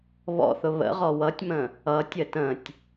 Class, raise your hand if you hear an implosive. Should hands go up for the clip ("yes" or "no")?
no